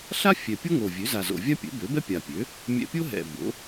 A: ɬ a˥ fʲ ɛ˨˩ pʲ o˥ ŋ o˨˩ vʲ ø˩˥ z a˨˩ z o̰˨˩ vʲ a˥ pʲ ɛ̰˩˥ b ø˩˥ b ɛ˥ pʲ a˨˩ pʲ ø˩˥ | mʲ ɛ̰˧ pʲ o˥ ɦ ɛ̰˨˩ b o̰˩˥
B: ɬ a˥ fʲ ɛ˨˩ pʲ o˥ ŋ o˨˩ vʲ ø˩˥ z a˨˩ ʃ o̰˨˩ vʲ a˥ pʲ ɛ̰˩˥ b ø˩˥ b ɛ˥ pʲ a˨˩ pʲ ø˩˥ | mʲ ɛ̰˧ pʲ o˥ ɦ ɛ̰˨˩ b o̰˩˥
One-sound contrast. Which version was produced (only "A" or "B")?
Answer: A